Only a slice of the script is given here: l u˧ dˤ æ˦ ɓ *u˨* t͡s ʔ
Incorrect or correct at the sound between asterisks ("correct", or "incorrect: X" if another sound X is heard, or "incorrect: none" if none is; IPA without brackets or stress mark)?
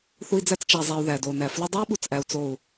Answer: correct